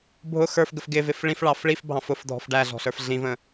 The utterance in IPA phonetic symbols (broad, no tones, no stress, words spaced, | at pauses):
bʱʊ xə˞fɡəf ɡɪvɪf ɭĩfɭɑf ɭifbʱɑ̃f ʊfdʱɔ̤f ɖæɮɔ̤ɬə˞f ɮĩvə̃